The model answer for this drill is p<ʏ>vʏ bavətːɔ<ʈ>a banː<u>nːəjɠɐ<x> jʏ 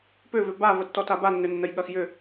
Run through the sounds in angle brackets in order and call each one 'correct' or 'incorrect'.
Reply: correct, incorrect, incorrect, correct

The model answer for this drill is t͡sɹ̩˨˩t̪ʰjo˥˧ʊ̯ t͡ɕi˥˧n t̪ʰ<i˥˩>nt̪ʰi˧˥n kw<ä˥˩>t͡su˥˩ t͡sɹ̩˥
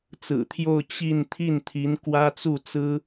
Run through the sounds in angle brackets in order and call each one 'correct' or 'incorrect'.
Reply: correct, incorrect

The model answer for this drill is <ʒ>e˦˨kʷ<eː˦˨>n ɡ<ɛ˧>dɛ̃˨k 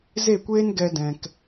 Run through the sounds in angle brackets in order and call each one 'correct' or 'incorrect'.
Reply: incorrect, incorrect, correct

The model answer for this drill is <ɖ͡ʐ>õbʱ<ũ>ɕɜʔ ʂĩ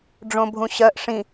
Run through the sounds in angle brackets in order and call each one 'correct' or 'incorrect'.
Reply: correct, correct

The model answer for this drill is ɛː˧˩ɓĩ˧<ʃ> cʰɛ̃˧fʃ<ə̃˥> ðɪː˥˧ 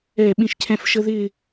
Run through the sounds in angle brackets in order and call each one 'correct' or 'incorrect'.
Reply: correct, incorrect

